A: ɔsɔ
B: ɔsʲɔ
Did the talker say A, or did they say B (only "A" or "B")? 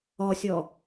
B